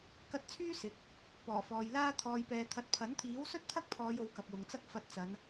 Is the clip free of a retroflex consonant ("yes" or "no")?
yes